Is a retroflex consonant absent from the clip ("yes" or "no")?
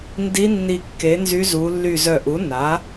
yes